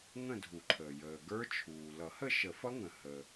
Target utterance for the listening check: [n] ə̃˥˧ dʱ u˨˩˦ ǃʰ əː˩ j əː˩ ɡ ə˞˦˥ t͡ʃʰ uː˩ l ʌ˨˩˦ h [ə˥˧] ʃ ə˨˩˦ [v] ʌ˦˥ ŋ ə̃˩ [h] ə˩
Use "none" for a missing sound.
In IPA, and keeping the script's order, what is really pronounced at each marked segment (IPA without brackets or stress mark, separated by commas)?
ŋ, ə˥˧, f, h